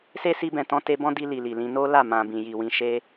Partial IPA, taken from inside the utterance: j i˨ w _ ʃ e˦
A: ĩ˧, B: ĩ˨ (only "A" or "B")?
A